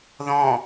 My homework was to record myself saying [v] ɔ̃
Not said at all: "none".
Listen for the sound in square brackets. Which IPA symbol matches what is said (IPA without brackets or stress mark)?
ð